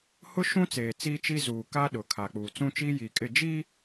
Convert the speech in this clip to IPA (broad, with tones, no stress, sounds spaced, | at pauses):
h ʊ˦ ʃ ũ˦ t͡s eː˨ t͡s iː˦ t͡ʃ i˦ z uː˨ k a˦ ɗ ʊ˨ kʰ a˨ k͡p uː˨ t͡s ũ˦ t͡ʃ iː˦ j iː˨ kʼ ɪ˦˨ d͡ʒ i˦